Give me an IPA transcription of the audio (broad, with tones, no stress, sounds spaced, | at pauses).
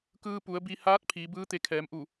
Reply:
k ɯː˧ p u˩˧ ə̯ b i˧ h aː˧˥ t̚ pʰ iː˩˧ b ɯː˧˥ t̪ e˧ kʰ ɛː˩˧ m ʔ u˧˩